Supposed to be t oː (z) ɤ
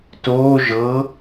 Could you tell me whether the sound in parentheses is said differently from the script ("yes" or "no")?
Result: yes